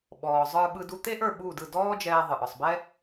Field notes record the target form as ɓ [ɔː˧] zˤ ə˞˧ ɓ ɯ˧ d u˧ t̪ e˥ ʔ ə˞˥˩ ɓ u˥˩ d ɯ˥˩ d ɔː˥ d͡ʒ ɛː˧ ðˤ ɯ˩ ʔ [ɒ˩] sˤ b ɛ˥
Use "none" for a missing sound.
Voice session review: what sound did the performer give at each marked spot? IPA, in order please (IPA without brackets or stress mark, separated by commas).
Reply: ɔː˩, ɒ˩